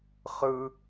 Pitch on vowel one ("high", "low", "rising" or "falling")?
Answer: high